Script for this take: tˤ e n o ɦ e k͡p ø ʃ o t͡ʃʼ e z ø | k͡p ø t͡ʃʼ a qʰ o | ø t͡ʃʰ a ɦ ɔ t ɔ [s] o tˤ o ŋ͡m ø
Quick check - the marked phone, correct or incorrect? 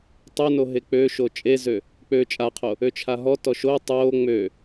incorrect